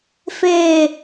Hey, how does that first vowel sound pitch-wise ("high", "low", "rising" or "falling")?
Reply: falling